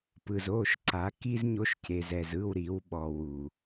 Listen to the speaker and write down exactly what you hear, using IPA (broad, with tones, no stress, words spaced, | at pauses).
pɯ˨zo˦˨ʃ ǀa˨˦ki˦zɲo˧ʃ ce˨zɛ˨zɯ˦˨w ɾi˨˦w ɓɔ˨ wu˨